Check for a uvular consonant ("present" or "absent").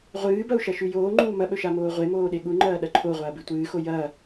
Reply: present